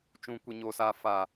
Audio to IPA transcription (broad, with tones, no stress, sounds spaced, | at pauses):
t͡ʃ ũ˨ kʷ i˨ ɲ oː˨ s aː˨ f a˨